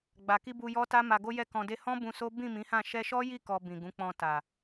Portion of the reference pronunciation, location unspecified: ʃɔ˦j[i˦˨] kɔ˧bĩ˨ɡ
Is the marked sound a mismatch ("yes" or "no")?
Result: no